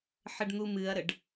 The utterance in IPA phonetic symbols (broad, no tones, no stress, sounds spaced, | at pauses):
ħ ə ɖ n̪ u m ɨ ɐ̯ ɾ ə ɖ